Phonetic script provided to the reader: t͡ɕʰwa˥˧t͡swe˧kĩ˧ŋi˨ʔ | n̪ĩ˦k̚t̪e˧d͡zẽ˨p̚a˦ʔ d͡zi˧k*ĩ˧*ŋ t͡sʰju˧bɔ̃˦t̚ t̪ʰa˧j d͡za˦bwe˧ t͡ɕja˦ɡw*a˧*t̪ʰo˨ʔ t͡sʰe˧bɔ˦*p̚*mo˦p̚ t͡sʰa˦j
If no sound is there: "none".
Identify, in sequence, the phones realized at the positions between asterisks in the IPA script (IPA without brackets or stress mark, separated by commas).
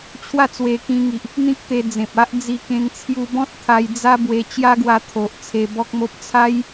ẽ˧, a˧, k̚